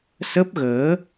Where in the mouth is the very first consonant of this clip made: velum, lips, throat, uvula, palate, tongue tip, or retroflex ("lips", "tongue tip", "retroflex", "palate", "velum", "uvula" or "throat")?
tongue tip